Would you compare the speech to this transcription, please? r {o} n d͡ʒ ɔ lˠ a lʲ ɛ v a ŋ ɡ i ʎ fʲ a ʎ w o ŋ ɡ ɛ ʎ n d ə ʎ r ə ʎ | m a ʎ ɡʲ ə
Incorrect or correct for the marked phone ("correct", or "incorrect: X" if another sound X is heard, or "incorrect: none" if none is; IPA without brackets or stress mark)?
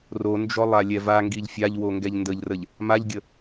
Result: correct